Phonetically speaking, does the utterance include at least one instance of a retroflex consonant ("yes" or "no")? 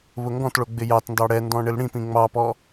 yes